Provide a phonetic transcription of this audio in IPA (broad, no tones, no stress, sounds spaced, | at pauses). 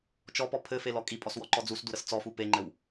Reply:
t͡ʃ ɔ p ɔ pʰ ɘ f e l ɔ kʼ i pʼ ɔ s w ɔ ǃ ɔ d͡z u s d u ɾ ə s t͡s ɔ f u p e ŋ͡ǃ ɘ w